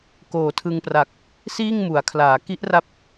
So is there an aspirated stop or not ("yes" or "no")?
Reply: yes